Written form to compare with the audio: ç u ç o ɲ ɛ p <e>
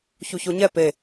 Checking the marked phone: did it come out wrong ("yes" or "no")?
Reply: no